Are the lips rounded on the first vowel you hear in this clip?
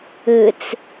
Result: no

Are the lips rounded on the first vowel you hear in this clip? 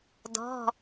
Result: yes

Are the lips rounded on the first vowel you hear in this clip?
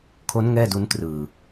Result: yes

